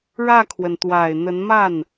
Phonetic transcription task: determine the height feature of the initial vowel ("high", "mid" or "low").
low